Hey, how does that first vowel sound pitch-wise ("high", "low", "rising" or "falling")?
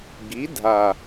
rising